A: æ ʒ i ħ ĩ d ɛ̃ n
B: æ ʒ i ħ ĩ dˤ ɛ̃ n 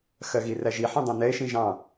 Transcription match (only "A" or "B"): B